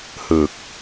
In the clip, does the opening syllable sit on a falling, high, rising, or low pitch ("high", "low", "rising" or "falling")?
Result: low